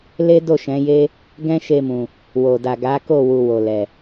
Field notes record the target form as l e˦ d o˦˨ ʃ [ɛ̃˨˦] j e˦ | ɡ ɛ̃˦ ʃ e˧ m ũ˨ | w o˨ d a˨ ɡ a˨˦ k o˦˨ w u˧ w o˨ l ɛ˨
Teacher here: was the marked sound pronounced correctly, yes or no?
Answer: yes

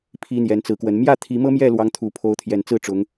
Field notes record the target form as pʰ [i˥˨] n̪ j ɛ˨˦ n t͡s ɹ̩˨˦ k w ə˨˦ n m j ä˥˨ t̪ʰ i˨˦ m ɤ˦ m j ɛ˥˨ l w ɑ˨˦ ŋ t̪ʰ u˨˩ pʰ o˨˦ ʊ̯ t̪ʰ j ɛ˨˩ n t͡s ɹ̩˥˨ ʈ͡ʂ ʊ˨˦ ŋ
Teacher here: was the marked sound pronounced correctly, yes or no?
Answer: no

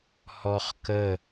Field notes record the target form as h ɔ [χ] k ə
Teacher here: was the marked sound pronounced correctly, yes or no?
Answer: yes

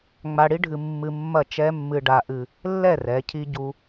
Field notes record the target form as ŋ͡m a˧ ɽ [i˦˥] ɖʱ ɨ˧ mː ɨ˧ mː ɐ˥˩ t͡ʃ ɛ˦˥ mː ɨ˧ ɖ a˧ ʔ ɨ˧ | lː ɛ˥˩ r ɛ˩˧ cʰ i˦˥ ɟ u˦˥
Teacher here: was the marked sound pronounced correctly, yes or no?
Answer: yes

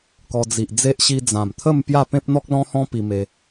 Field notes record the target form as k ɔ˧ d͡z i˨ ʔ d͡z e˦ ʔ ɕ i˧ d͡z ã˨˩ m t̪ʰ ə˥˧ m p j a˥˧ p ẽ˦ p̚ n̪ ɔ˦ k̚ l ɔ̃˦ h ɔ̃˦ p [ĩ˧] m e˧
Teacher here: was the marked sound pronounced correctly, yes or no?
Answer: no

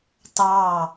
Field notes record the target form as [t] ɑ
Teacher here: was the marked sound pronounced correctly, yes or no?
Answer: yes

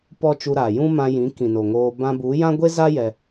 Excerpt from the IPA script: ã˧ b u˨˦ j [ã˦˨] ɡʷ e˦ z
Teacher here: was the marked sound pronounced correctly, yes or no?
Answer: no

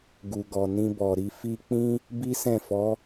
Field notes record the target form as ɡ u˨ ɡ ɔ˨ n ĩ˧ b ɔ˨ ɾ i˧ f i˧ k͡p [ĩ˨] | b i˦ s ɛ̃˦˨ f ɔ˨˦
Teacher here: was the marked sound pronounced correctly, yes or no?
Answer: no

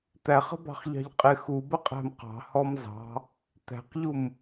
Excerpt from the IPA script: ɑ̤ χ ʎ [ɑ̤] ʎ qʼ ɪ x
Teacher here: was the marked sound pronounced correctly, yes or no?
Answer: yes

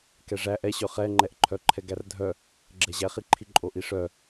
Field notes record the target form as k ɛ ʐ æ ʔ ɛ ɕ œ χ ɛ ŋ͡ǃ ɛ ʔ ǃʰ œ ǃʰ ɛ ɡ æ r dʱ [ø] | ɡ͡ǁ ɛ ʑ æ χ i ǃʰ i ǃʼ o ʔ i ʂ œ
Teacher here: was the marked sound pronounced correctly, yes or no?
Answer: no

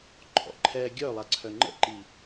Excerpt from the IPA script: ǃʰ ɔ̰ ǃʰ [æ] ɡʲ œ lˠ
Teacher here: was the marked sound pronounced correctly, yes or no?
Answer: no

